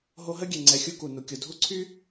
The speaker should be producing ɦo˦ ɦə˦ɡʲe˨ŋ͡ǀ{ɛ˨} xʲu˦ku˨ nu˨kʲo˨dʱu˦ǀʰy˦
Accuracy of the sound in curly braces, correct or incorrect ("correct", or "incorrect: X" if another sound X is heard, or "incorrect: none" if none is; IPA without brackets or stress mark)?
correct